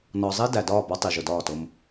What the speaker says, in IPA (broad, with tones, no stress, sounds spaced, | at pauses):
n ɒ˨ zˤ i˦ d æ˨ d ɒː˦˨ b ɒ˦ tˤ i˨ ʒ ʊ˨ d ɒː˦˨ t ʊ˦ m